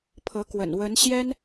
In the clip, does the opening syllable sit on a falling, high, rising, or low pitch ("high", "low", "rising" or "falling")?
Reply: rising